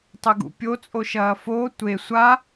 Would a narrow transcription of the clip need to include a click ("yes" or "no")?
no